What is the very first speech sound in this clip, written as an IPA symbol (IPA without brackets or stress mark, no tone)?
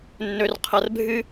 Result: nː